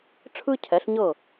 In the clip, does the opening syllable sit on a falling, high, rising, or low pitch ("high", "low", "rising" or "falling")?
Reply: high